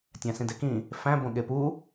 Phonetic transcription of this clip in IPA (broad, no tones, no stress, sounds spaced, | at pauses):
tʲ æ̃ s ĩ d e k ĩ | f æ̃ b õ ɠ e p u